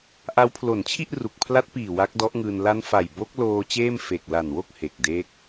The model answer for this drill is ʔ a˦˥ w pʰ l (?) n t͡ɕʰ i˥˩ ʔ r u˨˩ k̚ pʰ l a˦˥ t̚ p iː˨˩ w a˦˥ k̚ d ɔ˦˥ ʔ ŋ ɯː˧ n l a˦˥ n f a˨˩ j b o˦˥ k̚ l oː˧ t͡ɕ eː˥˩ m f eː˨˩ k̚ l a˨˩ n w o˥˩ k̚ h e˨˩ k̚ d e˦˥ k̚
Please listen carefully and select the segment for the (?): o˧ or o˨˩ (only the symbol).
o˨˩